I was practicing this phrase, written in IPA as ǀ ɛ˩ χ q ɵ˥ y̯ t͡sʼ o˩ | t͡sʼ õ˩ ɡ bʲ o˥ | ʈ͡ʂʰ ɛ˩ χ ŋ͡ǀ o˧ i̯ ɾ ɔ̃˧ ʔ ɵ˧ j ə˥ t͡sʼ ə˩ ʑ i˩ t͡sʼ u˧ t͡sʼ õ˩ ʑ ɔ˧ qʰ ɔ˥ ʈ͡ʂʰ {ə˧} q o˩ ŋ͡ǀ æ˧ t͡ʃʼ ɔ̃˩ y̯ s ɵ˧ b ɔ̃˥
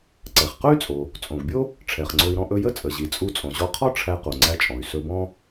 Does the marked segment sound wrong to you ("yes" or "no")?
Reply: yes